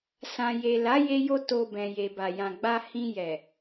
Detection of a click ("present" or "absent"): absent